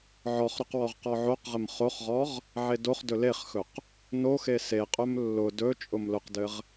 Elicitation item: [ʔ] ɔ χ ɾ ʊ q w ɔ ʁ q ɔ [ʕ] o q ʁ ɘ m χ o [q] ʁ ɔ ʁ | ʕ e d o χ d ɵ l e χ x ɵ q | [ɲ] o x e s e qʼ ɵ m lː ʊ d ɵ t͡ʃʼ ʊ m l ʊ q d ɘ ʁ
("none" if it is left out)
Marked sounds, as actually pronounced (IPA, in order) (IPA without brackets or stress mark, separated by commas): ʕ, ʕ, χ, n